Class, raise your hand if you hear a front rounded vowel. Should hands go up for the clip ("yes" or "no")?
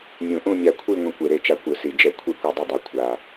no